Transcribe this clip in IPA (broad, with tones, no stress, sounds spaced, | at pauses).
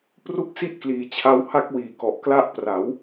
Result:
p r u˥˩ k̚ s i˥˩ ʔ k l iː˩˦ t͡ɕʰ a˧ w h a˦˥ k̚ w iː˨˩ k ɔ˨˩ ʔ k l a˦˥ ʔ p r a˩˦ w